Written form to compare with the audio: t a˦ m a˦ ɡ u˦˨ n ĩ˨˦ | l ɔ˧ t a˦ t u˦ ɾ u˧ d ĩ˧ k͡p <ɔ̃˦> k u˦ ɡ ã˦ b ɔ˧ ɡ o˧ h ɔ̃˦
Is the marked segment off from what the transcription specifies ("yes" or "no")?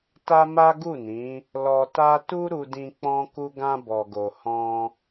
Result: no